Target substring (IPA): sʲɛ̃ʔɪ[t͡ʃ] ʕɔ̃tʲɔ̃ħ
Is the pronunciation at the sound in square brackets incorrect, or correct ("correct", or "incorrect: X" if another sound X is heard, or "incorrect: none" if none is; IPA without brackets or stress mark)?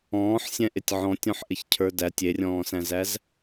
incorrect: tʲ